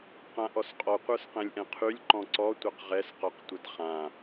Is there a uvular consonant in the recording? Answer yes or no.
yes